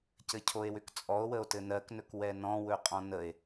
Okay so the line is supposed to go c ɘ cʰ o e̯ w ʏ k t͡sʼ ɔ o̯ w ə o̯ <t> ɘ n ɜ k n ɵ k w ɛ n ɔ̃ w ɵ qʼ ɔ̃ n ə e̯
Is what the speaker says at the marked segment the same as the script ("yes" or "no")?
yes